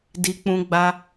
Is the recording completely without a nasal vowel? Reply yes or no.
no